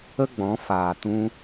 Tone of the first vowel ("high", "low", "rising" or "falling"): high